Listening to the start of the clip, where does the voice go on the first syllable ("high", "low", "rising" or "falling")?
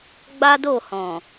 high